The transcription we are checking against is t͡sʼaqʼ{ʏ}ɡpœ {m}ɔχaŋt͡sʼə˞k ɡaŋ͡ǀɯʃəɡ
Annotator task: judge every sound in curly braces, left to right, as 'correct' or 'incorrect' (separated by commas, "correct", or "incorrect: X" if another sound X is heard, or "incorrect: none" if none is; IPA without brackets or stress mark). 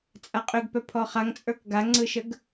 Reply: correct, incorrect: pʰ